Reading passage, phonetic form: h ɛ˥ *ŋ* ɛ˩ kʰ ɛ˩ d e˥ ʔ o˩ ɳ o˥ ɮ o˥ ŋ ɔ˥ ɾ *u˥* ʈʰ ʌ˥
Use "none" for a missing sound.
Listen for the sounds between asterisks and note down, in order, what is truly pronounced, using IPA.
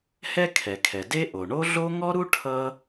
kʰ, u˥

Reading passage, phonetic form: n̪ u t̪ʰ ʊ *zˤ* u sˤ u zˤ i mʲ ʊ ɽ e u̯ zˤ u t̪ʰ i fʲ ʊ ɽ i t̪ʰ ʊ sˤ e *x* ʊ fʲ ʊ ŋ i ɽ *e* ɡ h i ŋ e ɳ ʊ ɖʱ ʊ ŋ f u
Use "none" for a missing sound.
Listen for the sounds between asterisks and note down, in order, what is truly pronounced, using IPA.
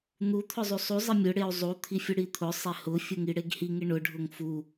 zˤ, h, e

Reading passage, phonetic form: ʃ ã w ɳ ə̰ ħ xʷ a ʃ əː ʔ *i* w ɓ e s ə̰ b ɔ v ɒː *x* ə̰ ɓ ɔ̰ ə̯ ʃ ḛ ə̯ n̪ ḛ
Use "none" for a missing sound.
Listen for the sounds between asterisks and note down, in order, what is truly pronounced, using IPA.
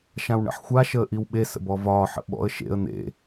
i, ħ

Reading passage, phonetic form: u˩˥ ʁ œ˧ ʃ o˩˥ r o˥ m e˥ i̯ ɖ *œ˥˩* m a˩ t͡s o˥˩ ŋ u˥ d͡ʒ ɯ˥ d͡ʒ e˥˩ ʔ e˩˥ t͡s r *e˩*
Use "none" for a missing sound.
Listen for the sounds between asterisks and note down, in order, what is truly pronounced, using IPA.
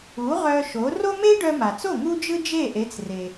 œ˧, e˩

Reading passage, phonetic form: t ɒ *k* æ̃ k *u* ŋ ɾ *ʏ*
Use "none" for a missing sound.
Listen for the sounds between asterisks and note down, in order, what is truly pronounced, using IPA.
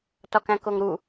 k, o, u

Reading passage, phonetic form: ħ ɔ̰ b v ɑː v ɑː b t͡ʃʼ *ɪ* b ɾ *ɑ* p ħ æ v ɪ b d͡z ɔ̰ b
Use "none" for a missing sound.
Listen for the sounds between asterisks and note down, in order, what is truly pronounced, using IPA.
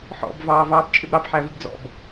ɪ, ɑ

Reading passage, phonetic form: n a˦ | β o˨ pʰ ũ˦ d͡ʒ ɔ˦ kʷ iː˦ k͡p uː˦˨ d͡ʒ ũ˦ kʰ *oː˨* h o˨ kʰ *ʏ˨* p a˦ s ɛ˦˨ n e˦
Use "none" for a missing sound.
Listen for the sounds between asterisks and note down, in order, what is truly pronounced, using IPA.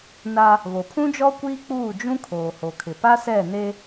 oː˨, ɪ˨

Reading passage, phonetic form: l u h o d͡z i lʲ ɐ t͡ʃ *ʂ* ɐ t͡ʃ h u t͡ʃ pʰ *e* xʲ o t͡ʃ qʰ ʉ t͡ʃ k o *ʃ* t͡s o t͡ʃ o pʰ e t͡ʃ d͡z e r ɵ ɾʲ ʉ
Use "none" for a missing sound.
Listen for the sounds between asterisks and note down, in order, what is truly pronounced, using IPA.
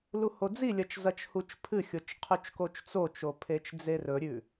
z, ɨ, t͡ʃ

